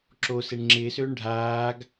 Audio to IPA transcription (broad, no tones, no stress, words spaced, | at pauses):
ǁo seɳŋ͡ǁɪːsøːɳ ɖʱaːɡ